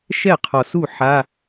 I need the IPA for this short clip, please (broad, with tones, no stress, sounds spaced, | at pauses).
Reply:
ʃ ɛ˥˩ qʰ ɔ˨˩ s u˥˩ ħ a˧˥˧